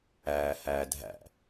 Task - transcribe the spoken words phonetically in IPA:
æː h æː dʱ æ̰

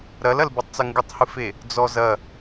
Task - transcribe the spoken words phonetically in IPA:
ɾ ɐ l ɐ l b ɨ tˤ t͡s ɐ ŋ ɡ ɨ tˤ h ɨ f e | d͡z ɔ z ɐ

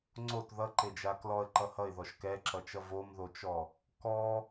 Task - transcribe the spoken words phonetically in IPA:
ŋ͡ǀ o t ð ʌ ǃ e d͡ʒ a k l ɔ ə̯ ǃ ʌ h ʌ ɪ̯ ð ɔ ʃ k ɛ ǁ ʌ t͡ʃ ʌ v o m ð o t͡ʃ ɔ | k ɔ

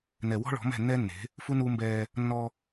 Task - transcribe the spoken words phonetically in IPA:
n ɛ˨ w ɔ̤˦ ɭ ɔ̤˨˦ m ɛ̤˦˨ nː ɛː˦ nː e̤˨˦ | f u˦ n uː˦ m b ɛː˦ | nː ɔː˦

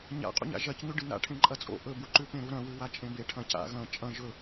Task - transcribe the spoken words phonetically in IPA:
ɲ a̰ qʼ ṵ ɲ a̰ ʒ ɐ c ɲ ʉ ɖ ɨ n a̰ ʈʰ ẽ ǃʼ ɐ t͡sʼ o̰ ʔ ɵ b u ǃ ʉ p ẽ ɾ u ɾ ɐ̃ w ʉ w a t͡ʃʼ ẽ b e ʈʰ ɐ̃ c a̰ ɣ ɐ̃ t͡ʃʼ ɐ̃ ʒ ɵ

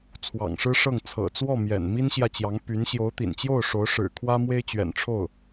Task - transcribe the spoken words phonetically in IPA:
t͡sʰ w ɑ̰˨˩ ŋ ʂ ɻ̩˥ ʂ ɤ˥˩ ŋ t͡sʰ ɤ̰˨˩ t͡s w ɔ˥˩ m j ɛ̰˨˩ n m i˥ n ɕ j ä˥˩ t͡ɕ j ɑ˧˥ ŋ p y˧˥ n ɕ j o˧˥ ʊ̯ t̪ ḭ˨˩ n t͡ɕ j o˥˩ ʊ̯ ʂ o˧˥ ʊ̯ ʂ ɻ̩˨˩ kʰ w ä˥ m w e˥ ɪ̯ t͡ɕ ɥ ɛ̰˨˩ n ʈ͡ʂʰ o˥˩ ʊ̯

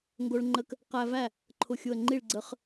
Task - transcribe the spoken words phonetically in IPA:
ŋ ɡ o˧ ɭ ŋ͡ǃ ə˧ k | q æ˧ v æ˥˩ | ǃʰ ʊ˧˩ xʲ ʊ˧˩ ə̯ ŋ͡ǃ i˥˩ ɭ ɡ͡ǀ ə˧ χ

